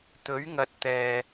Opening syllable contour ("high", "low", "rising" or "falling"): rising